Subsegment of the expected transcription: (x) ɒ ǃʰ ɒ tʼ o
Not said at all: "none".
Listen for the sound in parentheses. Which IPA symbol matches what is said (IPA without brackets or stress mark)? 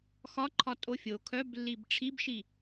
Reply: x